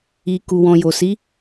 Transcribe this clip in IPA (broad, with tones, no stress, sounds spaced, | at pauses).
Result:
i˨ k u˨ w ɔ̃˨ j o˨ s i˨˦